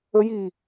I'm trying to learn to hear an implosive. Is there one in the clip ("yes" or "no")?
no